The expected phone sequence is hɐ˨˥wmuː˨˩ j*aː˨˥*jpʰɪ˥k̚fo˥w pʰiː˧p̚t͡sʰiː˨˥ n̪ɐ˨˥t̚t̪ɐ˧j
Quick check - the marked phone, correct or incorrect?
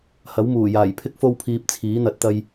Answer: incorrect